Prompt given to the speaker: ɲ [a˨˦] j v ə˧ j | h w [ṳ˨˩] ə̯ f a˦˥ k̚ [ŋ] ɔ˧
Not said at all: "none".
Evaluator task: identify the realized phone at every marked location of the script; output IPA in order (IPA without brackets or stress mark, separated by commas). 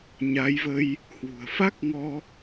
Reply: a˨˦, ṳ˨˩, ŋ